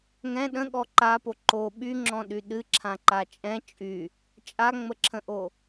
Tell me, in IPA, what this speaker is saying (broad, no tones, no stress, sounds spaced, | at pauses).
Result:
ŋ ɛ̃ ɗ ə̃ ɠ ɔ ǃ a p o ǃ o ɓ y ŋ͡ǁ ɔ̃ ɗ y ɗ ɨ ǁʰ ã ǃ a t͡ʃʼ ɛ̃ t͡ʃʼ y | t͡ʃʼ a ŋ͡m ə ǁʰ ə̃ ʔ o